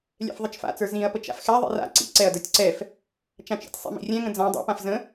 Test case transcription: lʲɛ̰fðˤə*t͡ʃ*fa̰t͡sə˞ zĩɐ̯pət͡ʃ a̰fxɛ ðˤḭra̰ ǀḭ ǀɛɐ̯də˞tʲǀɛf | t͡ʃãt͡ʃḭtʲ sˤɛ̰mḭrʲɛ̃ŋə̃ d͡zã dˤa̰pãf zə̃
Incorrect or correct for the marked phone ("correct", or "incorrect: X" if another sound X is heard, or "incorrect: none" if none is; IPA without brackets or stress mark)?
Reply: correct